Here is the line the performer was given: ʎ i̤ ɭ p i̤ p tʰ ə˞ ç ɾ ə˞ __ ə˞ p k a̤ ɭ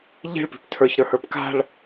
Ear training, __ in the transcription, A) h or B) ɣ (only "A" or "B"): A